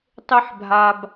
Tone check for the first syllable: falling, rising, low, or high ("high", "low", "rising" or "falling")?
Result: high